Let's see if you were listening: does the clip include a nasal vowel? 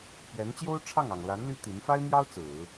no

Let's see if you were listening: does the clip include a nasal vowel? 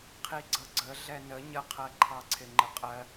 no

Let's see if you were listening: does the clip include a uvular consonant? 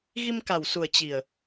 no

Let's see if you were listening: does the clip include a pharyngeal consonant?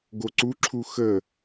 no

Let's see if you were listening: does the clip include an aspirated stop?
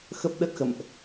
no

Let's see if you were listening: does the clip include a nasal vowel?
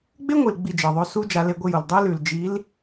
no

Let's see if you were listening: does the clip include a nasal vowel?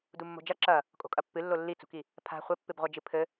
no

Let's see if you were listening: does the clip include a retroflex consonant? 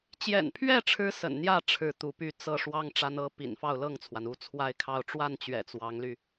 yes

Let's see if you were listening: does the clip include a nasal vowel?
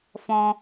yes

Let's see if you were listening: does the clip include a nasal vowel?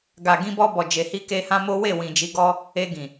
yes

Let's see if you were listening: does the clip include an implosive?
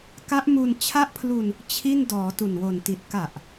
no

